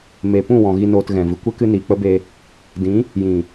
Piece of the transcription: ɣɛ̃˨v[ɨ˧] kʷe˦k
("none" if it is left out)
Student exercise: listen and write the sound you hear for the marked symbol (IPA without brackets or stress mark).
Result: ɨ˧